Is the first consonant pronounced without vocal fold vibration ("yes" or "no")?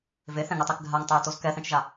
no